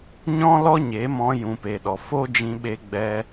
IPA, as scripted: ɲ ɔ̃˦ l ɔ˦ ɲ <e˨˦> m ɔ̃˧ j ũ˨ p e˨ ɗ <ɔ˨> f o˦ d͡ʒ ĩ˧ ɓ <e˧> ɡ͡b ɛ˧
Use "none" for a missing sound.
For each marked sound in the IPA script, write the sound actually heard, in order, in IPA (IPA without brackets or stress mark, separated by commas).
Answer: e˨˦, ɔ˨, e˧